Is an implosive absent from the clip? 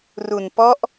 yes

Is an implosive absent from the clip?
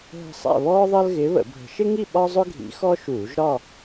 no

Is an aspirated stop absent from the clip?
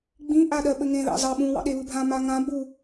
yes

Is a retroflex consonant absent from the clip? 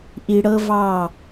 no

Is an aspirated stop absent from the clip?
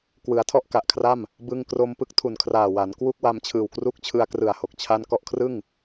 no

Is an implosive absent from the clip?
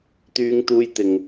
yes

